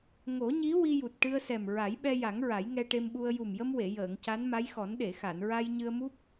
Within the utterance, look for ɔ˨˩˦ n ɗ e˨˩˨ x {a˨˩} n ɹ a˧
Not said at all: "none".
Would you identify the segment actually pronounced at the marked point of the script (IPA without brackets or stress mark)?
a˨˩˨